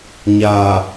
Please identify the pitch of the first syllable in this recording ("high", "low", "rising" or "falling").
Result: low